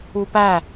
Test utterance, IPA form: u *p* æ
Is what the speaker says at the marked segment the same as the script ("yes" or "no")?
yes